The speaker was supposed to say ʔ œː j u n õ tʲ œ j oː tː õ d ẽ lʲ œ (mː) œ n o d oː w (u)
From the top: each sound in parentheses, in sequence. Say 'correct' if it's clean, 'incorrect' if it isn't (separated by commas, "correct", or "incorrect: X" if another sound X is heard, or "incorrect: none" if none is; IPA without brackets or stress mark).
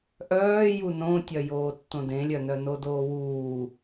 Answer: incorrect: n, incorrect: uː